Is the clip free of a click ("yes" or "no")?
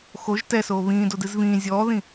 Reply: yes